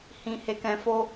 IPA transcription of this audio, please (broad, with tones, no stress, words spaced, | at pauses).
hĩ˨ he˨kɛ̃˨fo˧